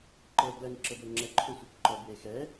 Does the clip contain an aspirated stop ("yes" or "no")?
yes